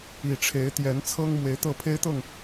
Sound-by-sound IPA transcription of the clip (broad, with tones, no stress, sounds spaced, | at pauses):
i˨˩ ʈ͡ʂʰ e˨˦ ɪ̯ t̪ j ɛ˨˦ n t͡sʰ ɤ˦ ŋ m w e˨˦ ɪ̯ t̪ ɤ˥˨ pʰ e˦ ɪ̯ t̪ ɤ˥˨ ŋ